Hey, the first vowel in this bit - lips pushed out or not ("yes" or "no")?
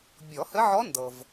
yes